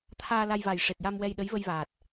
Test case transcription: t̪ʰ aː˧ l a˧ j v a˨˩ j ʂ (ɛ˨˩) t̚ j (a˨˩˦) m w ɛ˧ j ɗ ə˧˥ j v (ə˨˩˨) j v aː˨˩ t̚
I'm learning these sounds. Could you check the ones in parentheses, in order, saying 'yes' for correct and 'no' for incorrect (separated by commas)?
no, no, no